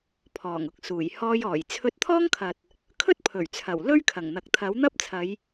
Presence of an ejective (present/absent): absent